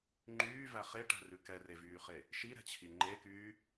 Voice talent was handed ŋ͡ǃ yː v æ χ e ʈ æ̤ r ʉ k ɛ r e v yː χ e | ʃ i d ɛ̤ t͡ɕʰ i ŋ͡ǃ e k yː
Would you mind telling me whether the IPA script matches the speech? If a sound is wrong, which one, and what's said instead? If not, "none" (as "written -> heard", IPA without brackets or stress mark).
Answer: d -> ɾ